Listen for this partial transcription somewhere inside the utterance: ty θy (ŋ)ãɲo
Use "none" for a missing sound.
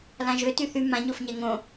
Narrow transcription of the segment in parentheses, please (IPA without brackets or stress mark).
m